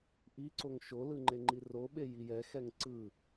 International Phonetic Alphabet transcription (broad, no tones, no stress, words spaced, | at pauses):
ʔiǀoŋ ʃolɯ ŋ͡ǃeŋ͡ǃiroɓe jijɛxɛŋ ǀɯ